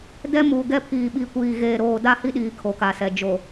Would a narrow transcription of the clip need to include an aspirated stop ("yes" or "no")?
yes